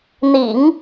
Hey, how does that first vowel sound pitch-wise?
low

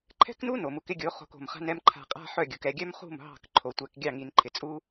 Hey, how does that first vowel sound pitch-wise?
high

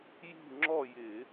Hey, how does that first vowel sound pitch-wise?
falling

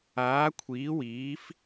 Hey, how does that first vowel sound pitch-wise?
rising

